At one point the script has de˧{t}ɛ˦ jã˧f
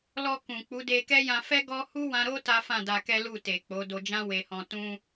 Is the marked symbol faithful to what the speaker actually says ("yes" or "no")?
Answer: no